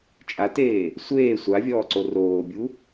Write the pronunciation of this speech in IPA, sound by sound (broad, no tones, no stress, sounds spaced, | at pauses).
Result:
t͡ʃʼ a t eː | sʷ eː sʷ a vʲ ɔː ǀ o r oː bʲ u